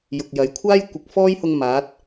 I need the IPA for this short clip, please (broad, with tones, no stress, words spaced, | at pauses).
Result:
jʊ˨k̚jɐ˨˥j kʷʰaː˥jkʷɪ˨k̚fɔː˥jhʊ˧ŋ maː˨˥t̚